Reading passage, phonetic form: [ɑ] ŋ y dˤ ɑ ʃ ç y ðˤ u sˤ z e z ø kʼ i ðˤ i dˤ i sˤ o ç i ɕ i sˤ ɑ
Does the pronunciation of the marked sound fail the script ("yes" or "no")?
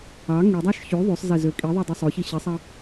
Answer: no